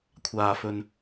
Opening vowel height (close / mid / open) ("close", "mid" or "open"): open